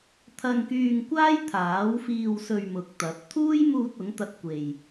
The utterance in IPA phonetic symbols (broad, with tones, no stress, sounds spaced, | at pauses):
t̪ʰ ɐ˧ ŋ k yː˧ ŋ kʷ aː˥ j t̪ʰ aː˨˥ w f iː˧ w s ɵ˧ ɥ m ʊ˨˥ k̚ t̪ ɐ˨˥ p̚ t̪ʰ uː˥ j m uː˧ t̚ ʊ˨˥ ŋ t̪ ɐ˧ t̚ kʷ e˨ j